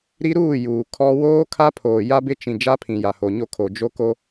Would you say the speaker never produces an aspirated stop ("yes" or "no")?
no